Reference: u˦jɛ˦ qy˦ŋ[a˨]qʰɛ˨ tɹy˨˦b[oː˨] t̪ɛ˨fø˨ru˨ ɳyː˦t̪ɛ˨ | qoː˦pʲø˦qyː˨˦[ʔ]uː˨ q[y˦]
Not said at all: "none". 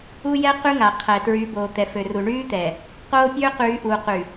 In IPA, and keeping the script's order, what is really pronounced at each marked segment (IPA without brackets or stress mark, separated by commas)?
a˨, oː˨, ʔ, y˨